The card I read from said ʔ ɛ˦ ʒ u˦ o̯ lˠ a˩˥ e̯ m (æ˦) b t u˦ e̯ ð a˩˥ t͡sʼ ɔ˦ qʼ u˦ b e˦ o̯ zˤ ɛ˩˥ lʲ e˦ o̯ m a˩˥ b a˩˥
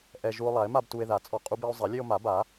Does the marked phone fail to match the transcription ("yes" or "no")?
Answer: yes